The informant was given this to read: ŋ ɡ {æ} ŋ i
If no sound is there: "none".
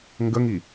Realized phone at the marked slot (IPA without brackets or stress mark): ə